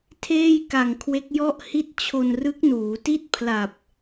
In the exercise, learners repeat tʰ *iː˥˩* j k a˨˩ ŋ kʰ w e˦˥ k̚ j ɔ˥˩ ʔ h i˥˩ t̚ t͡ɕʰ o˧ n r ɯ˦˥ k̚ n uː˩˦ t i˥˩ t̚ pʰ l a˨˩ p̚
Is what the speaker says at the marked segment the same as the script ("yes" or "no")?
no